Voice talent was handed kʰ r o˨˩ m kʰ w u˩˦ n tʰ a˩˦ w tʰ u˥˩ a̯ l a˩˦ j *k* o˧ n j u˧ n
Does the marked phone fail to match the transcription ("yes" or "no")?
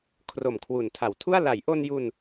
yes